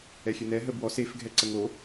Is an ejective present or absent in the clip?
absent